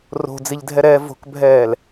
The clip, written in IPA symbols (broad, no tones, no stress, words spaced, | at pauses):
ro̤d͡ziʎdʱɛɾɛː vo̤kbʱɛːl